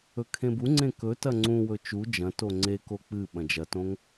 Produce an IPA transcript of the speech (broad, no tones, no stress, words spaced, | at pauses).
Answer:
ɵkʰẽbuŋ͡ǀẽ kɵ tɐŋ͡ǀũwɵ t͡ʃu d͡ʒɐ̃to ŋ͡ǀeko k͡pɨ ɓɐ̃d͡ʒɐtõŋ